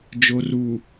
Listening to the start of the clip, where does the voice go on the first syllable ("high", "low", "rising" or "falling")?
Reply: low